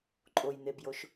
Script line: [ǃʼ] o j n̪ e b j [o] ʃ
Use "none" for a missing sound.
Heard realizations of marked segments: ǃʼ, o

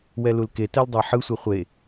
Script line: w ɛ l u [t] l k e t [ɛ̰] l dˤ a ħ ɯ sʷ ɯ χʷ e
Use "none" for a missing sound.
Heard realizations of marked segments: none, ɛ

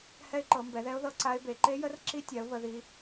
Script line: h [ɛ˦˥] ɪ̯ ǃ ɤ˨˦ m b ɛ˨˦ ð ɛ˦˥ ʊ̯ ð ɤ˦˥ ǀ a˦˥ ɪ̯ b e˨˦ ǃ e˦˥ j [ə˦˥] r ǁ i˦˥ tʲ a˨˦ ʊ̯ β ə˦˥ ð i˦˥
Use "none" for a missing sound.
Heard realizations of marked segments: ɛ˦˥, ə˦˥

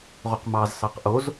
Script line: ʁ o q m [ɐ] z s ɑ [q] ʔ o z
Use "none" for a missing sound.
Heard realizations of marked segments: ɑ, q

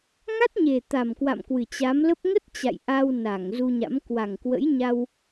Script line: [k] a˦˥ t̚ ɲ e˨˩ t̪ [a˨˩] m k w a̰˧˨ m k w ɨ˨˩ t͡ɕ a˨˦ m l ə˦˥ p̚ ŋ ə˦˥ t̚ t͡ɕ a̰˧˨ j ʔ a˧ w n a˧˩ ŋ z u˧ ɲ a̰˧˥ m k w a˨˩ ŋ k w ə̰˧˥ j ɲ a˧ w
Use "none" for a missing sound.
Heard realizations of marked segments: ŋ, a˨˩

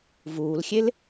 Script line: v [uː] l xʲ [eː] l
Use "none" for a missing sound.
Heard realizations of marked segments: uː, e

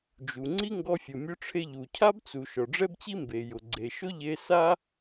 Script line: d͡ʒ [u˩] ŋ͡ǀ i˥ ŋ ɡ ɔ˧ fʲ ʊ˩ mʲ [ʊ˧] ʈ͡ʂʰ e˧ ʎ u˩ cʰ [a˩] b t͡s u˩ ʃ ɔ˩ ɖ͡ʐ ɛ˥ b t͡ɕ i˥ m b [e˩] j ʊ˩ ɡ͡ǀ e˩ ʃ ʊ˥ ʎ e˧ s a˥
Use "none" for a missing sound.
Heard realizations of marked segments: u˩, ʊ˧, a˥, e˩

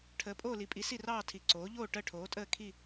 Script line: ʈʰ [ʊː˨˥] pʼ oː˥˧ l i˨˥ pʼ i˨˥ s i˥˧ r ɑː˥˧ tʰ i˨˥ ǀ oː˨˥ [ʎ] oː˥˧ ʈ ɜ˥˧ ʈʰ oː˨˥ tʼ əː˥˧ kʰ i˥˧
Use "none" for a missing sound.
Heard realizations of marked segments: əː˨˥, ʎ

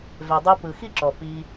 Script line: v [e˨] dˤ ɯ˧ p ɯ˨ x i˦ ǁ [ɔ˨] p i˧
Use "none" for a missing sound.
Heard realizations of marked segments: e˨, ɔ˨

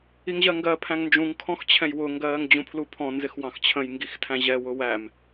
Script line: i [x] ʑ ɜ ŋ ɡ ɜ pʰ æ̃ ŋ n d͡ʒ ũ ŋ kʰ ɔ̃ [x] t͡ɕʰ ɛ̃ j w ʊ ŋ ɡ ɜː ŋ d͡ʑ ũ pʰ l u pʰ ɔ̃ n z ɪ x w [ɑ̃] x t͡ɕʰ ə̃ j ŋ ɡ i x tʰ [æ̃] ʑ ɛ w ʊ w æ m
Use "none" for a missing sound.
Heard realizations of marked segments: ŋ, x, ɑ̃, æ̃

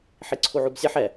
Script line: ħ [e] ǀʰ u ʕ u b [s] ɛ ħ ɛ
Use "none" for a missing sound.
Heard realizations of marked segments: i, sʲ

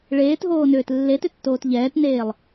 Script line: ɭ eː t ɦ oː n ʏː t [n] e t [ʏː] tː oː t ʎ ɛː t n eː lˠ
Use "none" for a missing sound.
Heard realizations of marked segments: lː, ʏ

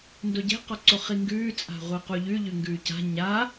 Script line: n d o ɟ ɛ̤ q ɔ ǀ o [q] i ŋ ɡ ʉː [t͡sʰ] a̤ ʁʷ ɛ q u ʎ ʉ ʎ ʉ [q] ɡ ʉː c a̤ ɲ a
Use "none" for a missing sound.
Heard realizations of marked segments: χ, t͡sʼ, ŋ

